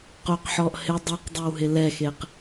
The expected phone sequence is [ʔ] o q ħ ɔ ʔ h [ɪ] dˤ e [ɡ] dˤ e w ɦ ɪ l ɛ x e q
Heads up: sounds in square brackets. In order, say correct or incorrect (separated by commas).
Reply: incorrect, correct, incorrect